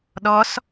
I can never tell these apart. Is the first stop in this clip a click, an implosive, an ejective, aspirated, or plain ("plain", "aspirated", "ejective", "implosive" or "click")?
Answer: implosive